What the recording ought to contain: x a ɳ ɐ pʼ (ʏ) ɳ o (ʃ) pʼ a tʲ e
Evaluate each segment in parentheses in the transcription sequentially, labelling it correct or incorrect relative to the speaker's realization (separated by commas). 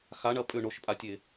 correct, correct